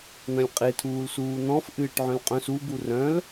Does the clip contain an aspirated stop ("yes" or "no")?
yes